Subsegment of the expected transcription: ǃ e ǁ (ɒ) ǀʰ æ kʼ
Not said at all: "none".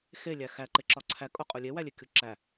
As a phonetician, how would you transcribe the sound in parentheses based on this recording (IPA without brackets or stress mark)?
ɒ